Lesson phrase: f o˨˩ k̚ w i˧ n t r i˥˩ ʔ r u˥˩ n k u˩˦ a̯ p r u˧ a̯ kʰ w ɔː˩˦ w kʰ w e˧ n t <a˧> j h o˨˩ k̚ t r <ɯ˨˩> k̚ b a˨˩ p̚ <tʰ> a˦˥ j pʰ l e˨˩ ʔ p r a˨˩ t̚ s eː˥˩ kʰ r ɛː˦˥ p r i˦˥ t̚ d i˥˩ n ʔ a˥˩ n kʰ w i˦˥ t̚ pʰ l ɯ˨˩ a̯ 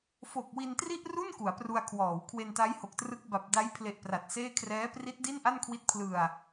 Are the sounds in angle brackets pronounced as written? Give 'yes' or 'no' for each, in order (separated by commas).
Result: no, no, no